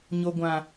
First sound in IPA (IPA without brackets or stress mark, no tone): ɲ